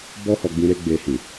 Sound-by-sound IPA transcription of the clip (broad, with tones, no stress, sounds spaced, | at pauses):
b ɔ˦ h ɔ˧ ɡ͡b ĩ˧ ɾ e˦ ɡ͡b e˧ h ĩ˨